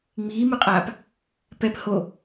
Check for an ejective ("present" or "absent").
present